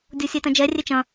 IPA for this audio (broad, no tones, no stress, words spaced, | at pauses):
dʲosʲetɐ̃d͡ʒɛ rʲet͡ʃɐ̃